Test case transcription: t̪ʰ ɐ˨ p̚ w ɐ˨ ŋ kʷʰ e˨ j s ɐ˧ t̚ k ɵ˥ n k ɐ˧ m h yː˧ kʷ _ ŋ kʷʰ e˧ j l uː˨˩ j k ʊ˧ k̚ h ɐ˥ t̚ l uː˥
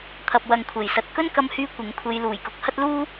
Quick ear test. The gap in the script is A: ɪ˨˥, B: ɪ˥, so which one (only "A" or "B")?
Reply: A